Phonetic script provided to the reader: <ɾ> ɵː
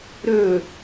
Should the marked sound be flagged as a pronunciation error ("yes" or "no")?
no